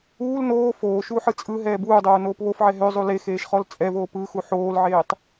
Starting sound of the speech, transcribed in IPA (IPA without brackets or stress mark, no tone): uː